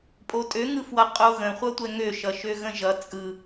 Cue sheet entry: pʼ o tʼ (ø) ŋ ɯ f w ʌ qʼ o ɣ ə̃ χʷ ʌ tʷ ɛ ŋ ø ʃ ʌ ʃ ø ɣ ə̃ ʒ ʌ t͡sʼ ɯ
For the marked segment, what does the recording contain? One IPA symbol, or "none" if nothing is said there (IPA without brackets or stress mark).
ø